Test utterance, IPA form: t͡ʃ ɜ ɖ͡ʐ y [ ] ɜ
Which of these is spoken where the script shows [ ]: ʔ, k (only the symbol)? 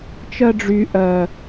ʔ